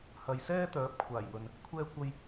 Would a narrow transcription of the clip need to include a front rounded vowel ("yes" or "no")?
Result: yes